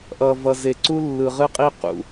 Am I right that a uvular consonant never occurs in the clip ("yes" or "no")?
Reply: no